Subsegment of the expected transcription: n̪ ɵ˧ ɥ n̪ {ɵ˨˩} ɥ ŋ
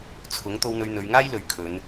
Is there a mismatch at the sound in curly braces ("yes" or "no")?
yes